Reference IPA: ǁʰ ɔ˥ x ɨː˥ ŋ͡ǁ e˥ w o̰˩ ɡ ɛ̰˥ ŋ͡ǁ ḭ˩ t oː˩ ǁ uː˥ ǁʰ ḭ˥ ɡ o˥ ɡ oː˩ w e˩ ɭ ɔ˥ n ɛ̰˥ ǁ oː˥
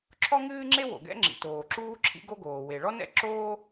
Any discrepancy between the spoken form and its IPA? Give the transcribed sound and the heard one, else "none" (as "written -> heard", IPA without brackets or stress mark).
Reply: x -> ŋ